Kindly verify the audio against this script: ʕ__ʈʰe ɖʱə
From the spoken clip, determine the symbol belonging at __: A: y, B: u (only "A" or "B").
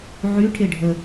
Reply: A